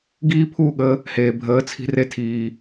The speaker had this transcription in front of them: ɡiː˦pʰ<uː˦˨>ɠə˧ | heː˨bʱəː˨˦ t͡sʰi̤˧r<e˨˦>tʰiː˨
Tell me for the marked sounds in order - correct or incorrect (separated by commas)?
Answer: correct, incorrect